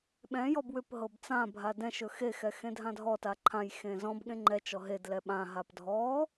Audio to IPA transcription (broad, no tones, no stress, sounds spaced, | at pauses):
ɓ ɛ̃ j ɔ b w ʏ p ɦ ɤ b t͡s ã bʱ a d ɛ̃ ʃ ɵ x e x ɛ x ẽ dʱ ã dʱ ɔ t a ǃʰ ã j x ẽ z ɔ̃ b ɠ ẽ ŋ͡ǃ ɛ t͡ʃ ɔ ɦ e d l ɛ ɓ ã ɦ a p dʱ ɔ